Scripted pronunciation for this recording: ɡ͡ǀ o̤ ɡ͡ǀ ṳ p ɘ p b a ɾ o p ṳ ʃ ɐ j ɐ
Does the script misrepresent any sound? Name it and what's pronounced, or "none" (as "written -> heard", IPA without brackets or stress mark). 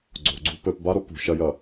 none